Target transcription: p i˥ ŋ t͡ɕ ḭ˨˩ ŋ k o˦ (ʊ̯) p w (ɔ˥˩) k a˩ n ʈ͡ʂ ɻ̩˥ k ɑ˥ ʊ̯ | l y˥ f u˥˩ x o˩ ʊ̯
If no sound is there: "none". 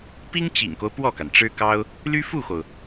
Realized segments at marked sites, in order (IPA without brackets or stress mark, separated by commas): ʊ̯, ɔ˥˩